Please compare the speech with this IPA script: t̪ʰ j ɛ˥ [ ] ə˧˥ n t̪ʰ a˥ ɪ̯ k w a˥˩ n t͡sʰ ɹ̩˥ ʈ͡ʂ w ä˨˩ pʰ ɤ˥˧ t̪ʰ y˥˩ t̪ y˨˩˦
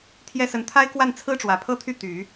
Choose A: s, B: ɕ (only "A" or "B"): A